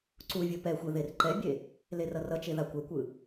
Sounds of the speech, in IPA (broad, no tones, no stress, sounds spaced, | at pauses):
ǀ u vʲ o p ɛ xʷ ɛ ð e r ǃ ɛ bʲ e | l e r ʌ r ʌ t͡ʃ e ð a kʷ ɛ kʷ ɯ